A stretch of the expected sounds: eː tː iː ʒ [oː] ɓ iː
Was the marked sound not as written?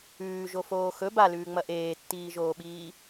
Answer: no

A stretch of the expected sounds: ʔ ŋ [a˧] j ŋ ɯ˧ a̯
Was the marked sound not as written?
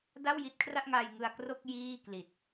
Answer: no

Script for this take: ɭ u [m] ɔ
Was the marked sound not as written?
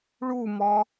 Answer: no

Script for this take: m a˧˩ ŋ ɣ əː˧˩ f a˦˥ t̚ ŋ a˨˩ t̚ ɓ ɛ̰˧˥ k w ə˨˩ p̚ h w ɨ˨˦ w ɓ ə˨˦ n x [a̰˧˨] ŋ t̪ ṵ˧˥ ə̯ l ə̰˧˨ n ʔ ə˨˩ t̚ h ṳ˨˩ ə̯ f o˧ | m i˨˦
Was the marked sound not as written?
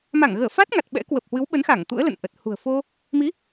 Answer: yes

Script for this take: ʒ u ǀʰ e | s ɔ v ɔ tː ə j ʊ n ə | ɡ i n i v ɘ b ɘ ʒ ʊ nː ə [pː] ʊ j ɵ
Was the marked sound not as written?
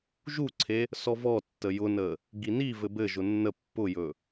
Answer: no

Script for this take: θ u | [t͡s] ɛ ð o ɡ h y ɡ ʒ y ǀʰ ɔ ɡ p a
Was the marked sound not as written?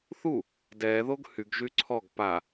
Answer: yes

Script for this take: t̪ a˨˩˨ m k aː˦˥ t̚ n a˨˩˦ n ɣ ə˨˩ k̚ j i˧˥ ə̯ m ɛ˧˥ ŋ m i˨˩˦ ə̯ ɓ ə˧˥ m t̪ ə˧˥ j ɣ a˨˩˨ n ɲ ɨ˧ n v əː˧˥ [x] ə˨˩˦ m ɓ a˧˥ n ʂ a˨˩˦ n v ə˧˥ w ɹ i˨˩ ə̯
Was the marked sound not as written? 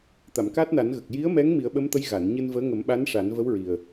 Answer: yes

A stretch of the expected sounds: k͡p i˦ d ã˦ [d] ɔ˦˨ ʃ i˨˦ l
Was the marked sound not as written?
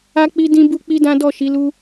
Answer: no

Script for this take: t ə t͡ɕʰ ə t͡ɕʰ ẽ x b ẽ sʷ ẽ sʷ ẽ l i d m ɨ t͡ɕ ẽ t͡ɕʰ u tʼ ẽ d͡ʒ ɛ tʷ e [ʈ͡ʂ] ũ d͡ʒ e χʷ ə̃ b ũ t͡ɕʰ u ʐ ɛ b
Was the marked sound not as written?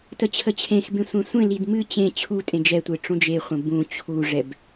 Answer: no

